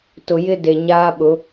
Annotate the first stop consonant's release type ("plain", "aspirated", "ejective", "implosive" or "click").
plain